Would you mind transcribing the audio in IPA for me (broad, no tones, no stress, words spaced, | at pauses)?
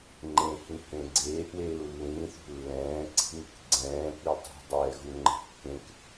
ŋ͡ǃẽhĩhẽ ɡ͡ǀeːʔweːu̯ lːĩːθṳ lːɛ̃ːǀi̤ŋ | ɡ͡ǀɛ̃ːpi tˤi̤dˤɛːɣuŋ͡ǃɛ̤ kːẽk